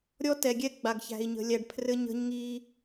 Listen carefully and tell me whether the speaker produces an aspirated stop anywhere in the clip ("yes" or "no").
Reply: yes